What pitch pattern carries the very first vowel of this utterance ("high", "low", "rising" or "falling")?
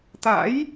rising